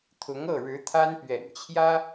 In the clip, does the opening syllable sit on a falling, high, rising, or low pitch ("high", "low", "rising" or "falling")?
rising